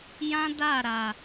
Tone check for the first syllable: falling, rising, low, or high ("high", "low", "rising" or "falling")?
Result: high